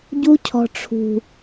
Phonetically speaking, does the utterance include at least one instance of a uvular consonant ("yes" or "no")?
no